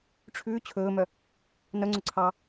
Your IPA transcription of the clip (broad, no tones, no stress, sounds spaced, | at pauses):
ʈ͡ʂʰ ʉː t͡ɕʰ ɵː m œ | n œ ŋ͡ǀ ɵ ǀʰ ɑ